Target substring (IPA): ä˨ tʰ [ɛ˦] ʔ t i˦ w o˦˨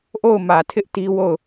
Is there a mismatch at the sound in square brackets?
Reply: yes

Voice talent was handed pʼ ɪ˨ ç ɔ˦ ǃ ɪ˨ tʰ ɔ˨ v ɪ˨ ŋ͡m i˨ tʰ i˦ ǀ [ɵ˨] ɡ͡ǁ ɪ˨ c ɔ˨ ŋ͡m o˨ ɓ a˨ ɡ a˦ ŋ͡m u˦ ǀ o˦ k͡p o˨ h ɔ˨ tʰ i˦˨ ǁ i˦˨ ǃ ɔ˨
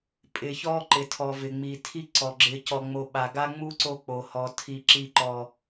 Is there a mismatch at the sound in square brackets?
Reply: yes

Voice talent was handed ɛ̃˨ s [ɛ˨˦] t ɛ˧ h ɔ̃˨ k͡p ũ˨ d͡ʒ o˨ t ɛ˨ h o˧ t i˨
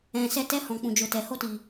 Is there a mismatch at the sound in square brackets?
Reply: yes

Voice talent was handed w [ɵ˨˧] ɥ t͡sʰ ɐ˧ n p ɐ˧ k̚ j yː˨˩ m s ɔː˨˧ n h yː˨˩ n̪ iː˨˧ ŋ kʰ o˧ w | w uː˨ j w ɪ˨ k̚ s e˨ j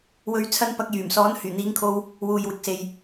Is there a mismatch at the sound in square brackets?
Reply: no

